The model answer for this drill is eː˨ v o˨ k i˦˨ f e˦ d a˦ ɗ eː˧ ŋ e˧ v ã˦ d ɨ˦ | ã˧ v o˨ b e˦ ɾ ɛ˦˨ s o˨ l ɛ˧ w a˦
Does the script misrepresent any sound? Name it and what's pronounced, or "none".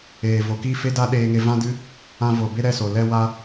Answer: none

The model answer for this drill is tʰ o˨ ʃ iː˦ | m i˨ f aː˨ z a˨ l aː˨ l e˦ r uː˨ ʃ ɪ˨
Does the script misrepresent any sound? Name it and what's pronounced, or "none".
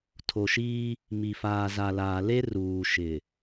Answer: none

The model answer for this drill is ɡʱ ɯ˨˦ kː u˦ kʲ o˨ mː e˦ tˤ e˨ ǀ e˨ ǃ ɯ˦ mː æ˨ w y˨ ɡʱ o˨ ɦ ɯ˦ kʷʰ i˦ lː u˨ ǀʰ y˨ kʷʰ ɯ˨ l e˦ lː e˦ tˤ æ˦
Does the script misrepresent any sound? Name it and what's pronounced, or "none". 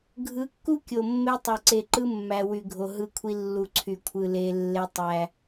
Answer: none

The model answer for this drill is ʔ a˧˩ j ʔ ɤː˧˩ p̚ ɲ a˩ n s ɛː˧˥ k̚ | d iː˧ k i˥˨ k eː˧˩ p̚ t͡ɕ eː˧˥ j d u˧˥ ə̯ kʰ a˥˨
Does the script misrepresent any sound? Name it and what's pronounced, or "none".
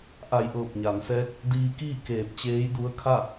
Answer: i˥˨ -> iː˥˨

